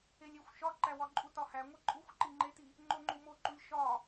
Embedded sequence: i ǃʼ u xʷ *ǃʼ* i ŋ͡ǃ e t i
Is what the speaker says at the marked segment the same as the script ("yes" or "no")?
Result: no